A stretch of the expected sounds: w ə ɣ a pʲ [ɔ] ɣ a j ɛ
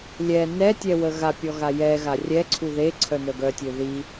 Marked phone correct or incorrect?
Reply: correct